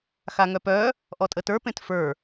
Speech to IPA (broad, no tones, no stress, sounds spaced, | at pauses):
x a ŋ œ p œ | ʔ ɔ tʼ ə t ə˞ p ẽ t f ə˞